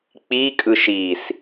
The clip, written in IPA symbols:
k͡p i kʼ ɯ ʃ i s

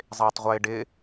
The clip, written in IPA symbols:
zˤ ɪː tˤ ʁʷ ɪː ɖ ɪ

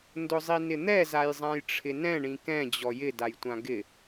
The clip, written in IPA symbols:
n d ʊ zˤ i n ɪ n̪ ɛ z a j zˤ ã j ʈ͡ʂʰ ɪ n ɛ̃ ɳ ĩ k ɛ̃ d͡ʑ ɔ j ɪ d a j tʷ ã ɡ ɪ

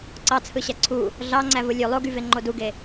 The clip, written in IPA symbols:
ǀ ɑ t͡sʰ ɯ ɕ æ ǀʰ u | ɮ ɑ ŋ͡ǀ æ v ɯ lʲ ø lˠ o ɡ y v e ŋ͡ǃ o d u ɡ e

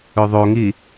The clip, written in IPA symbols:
ɵ ðˤ o ŋ i

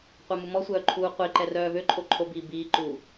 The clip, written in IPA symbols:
qʷ a m u m ɔ sʷ œː ǃʰ uː qʷ i ǃ ɛ r œː v ø ǃʼ o ǃʰ o b iː b iː ǃ uː

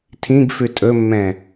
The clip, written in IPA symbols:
tʰ ĩ ɡ f ʉ tʼ ɵ mː ɛ̃

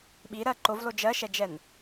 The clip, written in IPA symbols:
ɓ i ɾ ɜ ǃ o v l o d͡ʒ ɜ ʃ ɛ d͡ʒ ɛ n

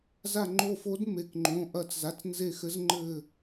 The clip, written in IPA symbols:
z a˦˨ ŋ͡ǃ o˦˨ f o˧˥ d m e˩˧˩ k ŋ͡ǃ õ˩˧˩ ʔ ɐː˦˨ t͡s z a˩˧˩ t͡s n z e˦˨ x ɘ˧˥ z ŋ͡ǃ ɘː˦˨

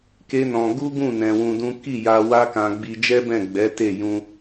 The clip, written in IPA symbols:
k e˦ n ɔ̃˧ ɡ u˦ ɡ ũ˦˨ n ɛ̃˧ w ũ˧ d ũ˦ k i˦˨ j a˧ w a˦ k ã˧ ɡ͡b i˧ d͡ʒ ɛ˦ b ɛ̃˦˨ ɡ͡b ɛ˨˦ t e˦˨ j ũ˧

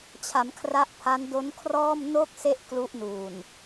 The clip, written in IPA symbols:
t͡ɕʰ a˩˦ m kʰ r a˦˥ ʔ pʰ a˦˥ n d o˦˥ n kʰ r ɔː˥˩ m n o˥˩ k̚ s e˥˩ ʔ k l u˦˥ ʔ n uː˨˩ n

